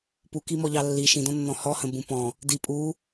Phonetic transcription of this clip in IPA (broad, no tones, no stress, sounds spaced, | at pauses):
p u k i m ɔ ʎ ɑ lː i ʃ ĩ d ɔ̃ nː ɔ̃ h ɔ h ə̃ b ũ p ɔ̃ | d i pʼ u